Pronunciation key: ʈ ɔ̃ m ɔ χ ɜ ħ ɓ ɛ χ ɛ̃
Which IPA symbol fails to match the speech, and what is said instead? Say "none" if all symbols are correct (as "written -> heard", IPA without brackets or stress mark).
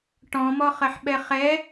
ɛ̃ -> ɛ